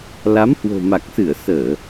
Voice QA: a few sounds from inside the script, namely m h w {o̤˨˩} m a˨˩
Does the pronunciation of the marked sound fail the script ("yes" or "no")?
no